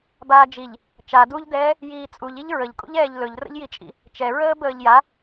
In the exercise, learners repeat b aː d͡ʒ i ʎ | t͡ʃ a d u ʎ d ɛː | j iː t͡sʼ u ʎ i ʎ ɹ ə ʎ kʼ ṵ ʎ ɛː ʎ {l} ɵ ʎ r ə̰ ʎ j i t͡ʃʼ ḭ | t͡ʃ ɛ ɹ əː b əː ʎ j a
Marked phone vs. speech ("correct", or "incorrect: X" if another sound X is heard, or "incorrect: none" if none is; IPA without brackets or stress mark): correct